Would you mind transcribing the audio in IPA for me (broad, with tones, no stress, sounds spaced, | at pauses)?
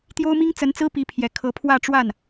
t̪ j o˥ ʊ̯ m i˥ ŋ t͡s ə˧˥ n t͡s ɹ̩˥ p i˧˥ pʰ j ɛ˨˩ kʰ ɤ˧˥ pʰ w ä˥˧ ʈ͡ʂ w a˥˩ n